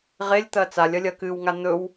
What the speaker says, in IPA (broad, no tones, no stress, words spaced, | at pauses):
ʁelʲt̪ɐ t͡salʲɐlʲɐ kɨwŋa n̪ɵw